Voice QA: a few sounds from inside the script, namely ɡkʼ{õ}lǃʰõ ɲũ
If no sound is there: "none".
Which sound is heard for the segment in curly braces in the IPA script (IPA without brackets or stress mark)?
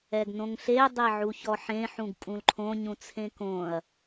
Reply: ũ